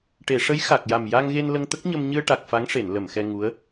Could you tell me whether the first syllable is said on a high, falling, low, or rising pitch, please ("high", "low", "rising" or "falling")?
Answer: low